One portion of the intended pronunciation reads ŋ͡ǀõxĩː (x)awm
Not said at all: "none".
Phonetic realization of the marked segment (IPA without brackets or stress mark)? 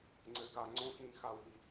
x